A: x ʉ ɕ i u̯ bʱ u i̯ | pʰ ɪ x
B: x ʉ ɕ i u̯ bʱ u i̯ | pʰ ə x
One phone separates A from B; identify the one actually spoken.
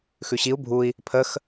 B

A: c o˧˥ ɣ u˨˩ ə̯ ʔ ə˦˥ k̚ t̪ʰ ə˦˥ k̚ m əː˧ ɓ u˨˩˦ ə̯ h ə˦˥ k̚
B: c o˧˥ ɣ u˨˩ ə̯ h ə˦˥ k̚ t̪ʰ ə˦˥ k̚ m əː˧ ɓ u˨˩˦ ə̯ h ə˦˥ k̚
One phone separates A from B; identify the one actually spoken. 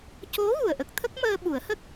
A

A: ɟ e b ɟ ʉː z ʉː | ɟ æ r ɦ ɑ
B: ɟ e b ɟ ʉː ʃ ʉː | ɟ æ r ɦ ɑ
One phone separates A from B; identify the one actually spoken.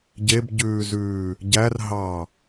A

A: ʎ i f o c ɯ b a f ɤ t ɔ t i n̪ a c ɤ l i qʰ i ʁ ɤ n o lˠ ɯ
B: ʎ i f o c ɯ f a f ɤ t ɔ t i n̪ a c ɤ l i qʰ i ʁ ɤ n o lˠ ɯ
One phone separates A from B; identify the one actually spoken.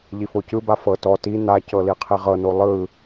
A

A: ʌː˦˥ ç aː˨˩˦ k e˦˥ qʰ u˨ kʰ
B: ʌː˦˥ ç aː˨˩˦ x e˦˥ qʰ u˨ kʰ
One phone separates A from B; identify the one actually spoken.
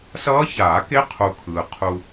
A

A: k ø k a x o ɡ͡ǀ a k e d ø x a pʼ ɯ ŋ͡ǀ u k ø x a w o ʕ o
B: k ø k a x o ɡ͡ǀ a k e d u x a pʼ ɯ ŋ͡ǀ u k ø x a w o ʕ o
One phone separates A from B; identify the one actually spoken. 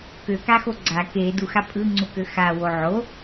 B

